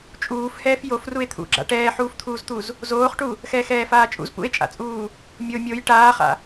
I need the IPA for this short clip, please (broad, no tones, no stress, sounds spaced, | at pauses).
t͡ʃʼ uː f h ɛː f j o f r u e̯ t̪ʰ ṵ ɡ͡ǁ a̰ ʈ ɛː ħ uː f t̪ʰ uː z t̪ u z | z oː χ ʈ u | x ɛː x ɛː f aː t͡ʃʼ ṵ z p ṵ e̯ t͡ʃʼ a̰ t͡sʼ uː | mʲ o mʲ o j ʈ aː χ a̰